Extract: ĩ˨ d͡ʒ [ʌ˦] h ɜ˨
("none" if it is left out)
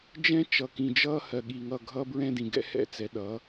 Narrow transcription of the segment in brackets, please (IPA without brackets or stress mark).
ʌː˦